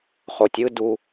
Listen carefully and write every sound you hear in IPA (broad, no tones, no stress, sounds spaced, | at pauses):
χ o tʲ ɯ d u